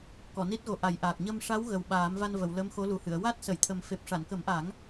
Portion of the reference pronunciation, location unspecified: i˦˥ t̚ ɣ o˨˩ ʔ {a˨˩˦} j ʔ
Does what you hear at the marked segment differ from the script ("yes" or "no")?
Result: no